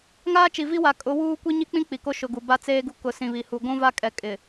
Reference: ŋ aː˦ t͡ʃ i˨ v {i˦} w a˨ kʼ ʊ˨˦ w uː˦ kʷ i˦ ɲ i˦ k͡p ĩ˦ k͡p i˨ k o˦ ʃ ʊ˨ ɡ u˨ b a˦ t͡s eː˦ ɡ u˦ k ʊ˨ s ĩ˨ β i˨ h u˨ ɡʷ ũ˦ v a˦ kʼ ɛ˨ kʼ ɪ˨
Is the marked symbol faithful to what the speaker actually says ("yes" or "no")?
yes